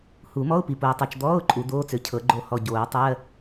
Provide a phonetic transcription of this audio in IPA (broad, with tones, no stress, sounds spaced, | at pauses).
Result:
h u˨˩˦ m ɔ˧˥˧ ʊ̯ p i˨ p o˨ ɪ̯ tˤ ɤ˨ t͡ʃ d̪ ɔː˧˥˧ ʊ̯ ǃʼ u˨˩˦ d̪ oː˧˥˧ t͡s ø˨˩˦ cʰ ɤ˨˩˦ ɡ͡ǃ o˦˨ h ɔ˦˨ ɟ oː˨˩˦ tˤ ɜ˧˥˧